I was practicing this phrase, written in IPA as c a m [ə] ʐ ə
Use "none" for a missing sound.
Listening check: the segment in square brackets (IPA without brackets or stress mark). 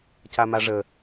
a